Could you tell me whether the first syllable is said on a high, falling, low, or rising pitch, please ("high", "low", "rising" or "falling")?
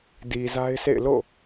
low